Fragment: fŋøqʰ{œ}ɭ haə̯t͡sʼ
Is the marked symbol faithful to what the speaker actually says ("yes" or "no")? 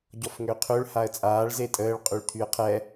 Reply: no